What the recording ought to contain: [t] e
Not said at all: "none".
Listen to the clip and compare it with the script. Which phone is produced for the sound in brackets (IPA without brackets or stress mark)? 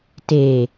t